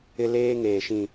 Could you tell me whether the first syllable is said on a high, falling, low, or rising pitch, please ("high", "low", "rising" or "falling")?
high